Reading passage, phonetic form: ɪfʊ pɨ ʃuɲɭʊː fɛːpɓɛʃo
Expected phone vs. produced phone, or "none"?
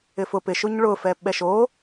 ɨ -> ɪ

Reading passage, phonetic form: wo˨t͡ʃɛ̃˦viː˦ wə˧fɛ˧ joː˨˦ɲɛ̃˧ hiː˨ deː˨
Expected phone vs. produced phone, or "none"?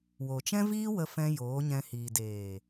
ɛ˧ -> ɛ̃˧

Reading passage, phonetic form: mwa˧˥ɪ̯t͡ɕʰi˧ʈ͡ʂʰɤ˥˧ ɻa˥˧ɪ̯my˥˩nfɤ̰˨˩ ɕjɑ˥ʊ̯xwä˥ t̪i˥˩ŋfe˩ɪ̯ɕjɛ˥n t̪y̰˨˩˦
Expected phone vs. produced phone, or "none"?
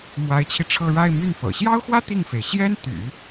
none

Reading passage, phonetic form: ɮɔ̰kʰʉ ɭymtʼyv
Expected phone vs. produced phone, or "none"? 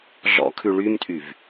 none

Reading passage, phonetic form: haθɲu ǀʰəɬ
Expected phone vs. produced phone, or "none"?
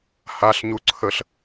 θ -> ɬ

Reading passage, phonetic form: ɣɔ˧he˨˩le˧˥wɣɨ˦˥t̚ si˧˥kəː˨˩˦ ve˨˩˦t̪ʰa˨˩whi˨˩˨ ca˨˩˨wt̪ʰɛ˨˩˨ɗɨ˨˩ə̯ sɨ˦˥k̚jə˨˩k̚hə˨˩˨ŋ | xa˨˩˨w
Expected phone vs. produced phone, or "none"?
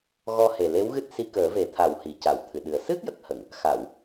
ɛ˨˩˨ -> ɨ˨˩˨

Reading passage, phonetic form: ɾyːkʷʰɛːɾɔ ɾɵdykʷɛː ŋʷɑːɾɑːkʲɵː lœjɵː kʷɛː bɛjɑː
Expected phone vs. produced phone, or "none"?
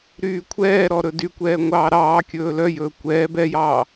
none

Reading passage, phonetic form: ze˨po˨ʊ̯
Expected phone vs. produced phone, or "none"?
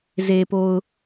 none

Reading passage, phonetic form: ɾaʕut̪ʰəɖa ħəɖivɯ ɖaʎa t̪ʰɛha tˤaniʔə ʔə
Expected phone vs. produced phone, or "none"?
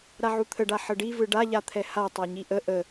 n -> ɲ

